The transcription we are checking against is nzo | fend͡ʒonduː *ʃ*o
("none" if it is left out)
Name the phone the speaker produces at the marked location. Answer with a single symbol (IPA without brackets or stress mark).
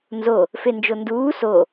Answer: s